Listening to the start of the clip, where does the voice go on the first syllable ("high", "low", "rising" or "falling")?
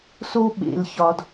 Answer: high